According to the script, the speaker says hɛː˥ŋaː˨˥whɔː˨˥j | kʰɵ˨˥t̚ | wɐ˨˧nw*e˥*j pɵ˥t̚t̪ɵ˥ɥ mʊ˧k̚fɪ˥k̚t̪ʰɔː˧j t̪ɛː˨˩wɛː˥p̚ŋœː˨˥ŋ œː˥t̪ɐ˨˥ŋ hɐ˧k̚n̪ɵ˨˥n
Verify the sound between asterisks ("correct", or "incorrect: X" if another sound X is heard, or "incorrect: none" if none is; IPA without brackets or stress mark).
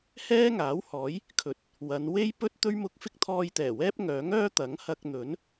correct